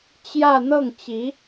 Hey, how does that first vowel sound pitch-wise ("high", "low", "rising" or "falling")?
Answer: falling